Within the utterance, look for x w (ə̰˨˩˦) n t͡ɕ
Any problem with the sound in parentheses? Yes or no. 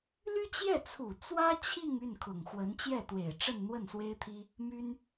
yes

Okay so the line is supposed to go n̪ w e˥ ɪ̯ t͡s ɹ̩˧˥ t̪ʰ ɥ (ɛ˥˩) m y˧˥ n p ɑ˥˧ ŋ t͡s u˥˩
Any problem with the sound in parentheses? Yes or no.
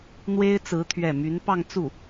no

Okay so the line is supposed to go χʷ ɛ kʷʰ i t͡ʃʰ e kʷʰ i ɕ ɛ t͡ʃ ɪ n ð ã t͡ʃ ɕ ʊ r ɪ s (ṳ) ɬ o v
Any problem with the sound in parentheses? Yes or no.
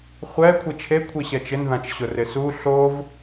yes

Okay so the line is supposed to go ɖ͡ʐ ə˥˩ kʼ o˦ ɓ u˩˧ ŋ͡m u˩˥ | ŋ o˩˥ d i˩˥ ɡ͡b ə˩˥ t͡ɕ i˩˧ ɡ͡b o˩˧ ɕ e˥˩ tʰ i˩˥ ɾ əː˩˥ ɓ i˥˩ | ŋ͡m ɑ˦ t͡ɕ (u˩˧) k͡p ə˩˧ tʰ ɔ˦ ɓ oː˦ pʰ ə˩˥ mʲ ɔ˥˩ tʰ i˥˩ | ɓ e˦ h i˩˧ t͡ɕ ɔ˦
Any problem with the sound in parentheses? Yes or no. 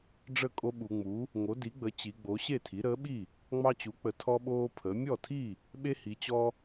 yes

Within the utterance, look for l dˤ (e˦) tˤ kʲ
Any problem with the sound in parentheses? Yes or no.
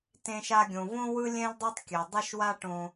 yes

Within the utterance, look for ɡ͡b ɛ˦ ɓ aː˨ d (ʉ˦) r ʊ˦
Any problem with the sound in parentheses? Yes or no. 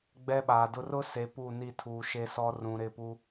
yes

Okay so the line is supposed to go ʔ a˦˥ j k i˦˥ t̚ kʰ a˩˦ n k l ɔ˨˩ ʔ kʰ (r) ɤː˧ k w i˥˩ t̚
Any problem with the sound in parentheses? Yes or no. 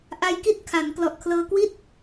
yes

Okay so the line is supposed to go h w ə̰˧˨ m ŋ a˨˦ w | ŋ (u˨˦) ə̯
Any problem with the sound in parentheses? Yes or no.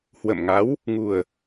yes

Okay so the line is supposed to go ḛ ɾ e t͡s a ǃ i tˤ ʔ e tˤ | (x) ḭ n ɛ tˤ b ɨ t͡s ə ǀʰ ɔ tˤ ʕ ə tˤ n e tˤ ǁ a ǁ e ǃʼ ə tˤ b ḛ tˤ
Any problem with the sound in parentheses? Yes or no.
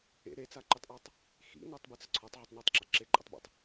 no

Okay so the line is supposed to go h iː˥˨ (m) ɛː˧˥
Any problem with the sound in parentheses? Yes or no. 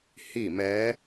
no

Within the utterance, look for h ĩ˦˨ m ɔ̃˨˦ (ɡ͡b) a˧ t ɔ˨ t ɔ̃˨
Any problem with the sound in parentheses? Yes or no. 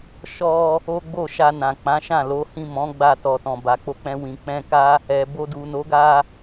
no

